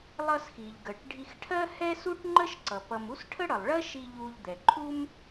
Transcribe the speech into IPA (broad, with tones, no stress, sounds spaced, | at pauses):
lˠ ʌ˧ s x i˩ ʎ ɡ ə˩ ʈ ɖʱ i˧ x ʈʰ ɜ˥ h ɛ˥ s u˥ ʈ ŋ͡ǃ ə˥ ʃ ǀ ʌ˩ p ʌ˧ m u˥ s ʈʰ ə˥ ɽ ʌ˩ lˠ ɭ ɜ˥ ʃ i˧ ʎ u˧ ʎ d̪ ɛ˩ ǃʰ u˥ m